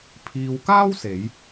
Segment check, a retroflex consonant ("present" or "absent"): absent